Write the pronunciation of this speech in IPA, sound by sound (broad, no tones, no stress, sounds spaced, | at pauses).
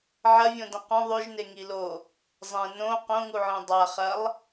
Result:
ʕ ɐ vʲ õ d ɐ̃ q õ ðˤ ʉ ʒ n e ŋ i l o | zˤ ẽ n õ q õ ŋ u ʕ ĩ dˤ a χ ɐ lˠ